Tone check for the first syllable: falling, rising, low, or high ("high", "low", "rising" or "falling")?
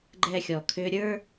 low